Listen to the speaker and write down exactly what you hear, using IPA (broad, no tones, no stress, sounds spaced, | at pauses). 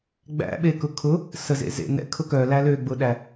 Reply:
ɡ͡b æ̰ ɓ e k ʊ kʰ ʊ | s ə z ḛ z ḛ n ɛ̰ kʰ ʊ k œ l æ l ø ɡ͡b ʊ ɗ æ